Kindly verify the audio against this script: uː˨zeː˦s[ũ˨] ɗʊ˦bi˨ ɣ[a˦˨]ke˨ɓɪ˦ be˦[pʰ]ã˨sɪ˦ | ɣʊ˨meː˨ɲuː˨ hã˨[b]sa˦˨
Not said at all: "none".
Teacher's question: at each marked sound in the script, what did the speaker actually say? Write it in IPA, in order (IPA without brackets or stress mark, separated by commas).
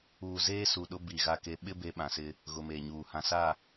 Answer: u˨, a˨, ɓ, none